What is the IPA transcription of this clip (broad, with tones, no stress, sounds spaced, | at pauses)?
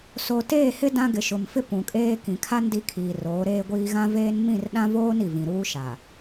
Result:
s o˨ t eː˦˨ h ɪ˦ d ã˦ ɡ ɪ˨ ʃ ʊ˨ m f ɪ˦ p ũ˨ kʼ eː˦ k ĩ˨ kʰ a˦ n d i˦ kʰ iː˨ r oː˨˦ ɾ eː˦ ɡʷ iː˦ ɣ ã˦ v eː˦ n m ĩ˦˨ r ɗ ã˦ v oː˦ n i˨ v ĩ˨ ɾ uː˦ ʃ a˨